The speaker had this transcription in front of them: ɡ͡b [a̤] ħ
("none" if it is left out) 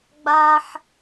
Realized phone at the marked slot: a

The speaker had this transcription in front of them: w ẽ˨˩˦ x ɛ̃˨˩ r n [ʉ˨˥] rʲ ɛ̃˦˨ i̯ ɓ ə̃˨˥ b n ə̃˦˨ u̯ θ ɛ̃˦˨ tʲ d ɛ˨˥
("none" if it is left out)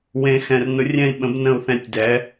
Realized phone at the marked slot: ʊ˨˥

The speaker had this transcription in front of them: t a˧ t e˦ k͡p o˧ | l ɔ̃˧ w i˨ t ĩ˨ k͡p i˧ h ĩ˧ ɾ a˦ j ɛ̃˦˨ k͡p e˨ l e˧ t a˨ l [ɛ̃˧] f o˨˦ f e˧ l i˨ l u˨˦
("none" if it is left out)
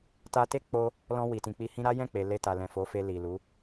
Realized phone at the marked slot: ɛ̃˨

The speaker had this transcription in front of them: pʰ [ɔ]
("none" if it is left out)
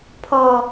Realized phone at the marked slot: ɔ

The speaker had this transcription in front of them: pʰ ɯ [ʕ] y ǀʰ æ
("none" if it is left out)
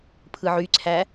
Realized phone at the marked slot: ʕ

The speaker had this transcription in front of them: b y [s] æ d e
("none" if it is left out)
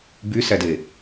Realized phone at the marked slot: s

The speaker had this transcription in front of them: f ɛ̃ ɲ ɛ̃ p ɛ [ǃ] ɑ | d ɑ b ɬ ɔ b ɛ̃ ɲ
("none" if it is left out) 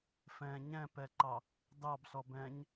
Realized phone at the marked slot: ǃ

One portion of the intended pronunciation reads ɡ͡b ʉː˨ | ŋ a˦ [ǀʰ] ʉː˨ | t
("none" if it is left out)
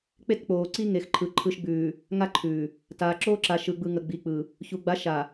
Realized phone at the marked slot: ǃʰ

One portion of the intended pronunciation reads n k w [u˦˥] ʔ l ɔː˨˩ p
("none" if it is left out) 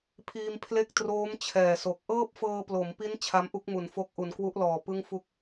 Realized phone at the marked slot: u˦˥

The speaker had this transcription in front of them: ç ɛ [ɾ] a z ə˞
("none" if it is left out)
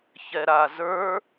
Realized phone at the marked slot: ɾ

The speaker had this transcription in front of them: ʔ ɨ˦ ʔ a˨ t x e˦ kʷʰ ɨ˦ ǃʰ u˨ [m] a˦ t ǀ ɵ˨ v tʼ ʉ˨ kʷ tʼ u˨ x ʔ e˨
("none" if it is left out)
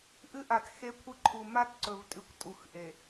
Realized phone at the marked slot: m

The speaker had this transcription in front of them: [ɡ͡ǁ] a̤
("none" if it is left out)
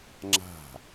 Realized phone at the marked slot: ŋ͡ǁ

